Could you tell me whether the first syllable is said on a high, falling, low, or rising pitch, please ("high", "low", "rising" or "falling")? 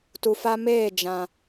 low